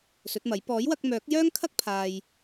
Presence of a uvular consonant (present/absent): absent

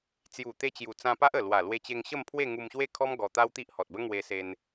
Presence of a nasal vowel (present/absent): present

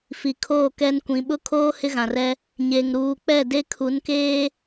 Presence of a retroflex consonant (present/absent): absent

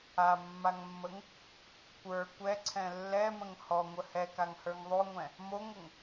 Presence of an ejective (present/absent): absent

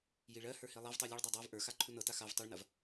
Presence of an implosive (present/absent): absent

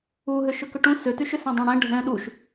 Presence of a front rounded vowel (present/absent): present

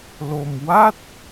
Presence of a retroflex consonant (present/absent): absent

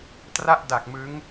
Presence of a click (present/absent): absent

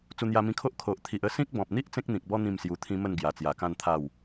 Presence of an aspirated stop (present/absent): present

